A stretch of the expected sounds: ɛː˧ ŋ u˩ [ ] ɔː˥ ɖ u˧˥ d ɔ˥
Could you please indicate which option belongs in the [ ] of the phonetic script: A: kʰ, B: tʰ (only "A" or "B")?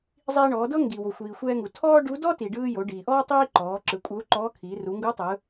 B